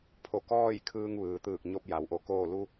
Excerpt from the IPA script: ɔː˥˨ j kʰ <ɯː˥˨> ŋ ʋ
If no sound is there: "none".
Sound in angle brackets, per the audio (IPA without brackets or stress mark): ɯː˧